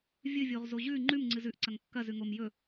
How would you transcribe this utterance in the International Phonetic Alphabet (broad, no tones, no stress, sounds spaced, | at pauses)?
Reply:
vʲ ɨ vʲ o ʁ z o ʑ ʉ ŋ͡ǃ ʉ m ŋ͡ǀ ɨ z ʉ ʔ ǀ ɐ ŋ kː ɐ z ʉ ŋ o m j ɵ